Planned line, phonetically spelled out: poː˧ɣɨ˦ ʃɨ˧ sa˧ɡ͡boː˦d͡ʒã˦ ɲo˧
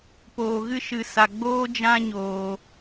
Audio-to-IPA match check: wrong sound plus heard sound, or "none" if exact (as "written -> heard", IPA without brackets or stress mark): o˧ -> oː˧